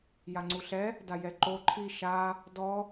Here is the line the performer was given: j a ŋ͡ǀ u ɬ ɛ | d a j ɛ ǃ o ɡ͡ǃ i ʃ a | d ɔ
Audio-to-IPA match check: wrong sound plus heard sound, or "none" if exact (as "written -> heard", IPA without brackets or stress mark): ɡ͡ǃ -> ǃʰ